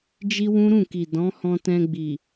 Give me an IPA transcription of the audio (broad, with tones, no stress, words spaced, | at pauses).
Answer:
d͡ʒi˦wũ˦ɾũ˦˨ki˨ dɔ̃˨˦hɔ̃˧ tɛ̃˧ɡ͡bi˨